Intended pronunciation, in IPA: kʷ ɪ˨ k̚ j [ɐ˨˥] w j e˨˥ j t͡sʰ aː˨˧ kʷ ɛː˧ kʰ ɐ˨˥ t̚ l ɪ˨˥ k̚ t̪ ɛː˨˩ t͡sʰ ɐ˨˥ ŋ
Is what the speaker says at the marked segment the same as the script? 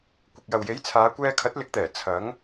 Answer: no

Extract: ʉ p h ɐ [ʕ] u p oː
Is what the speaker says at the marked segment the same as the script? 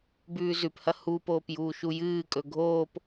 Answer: no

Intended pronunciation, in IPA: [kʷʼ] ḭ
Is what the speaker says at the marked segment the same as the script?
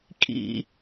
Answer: no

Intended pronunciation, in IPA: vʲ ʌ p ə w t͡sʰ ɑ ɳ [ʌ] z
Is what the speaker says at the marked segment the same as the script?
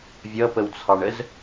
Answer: no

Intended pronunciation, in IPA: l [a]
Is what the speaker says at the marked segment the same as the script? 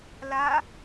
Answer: yes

